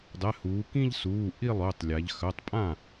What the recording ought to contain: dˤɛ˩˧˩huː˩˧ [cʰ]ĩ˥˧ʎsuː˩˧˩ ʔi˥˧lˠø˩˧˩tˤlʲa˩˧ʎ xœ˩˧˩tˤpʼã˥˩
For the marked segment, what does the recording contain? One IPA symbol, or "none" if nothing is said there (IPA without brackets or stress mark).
k